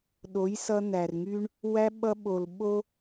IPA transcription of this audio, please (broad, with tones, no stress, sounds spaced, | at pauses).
ɗ o˨˦ j s ʌ˧ n̪ æ˨ r ŋ y˦ ɳ | w æ˦ ɓ ʌ˧ ɓ o˨ l ɓ o˦